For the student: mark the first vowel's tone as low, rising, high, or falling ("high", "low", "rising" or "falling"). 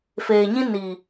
low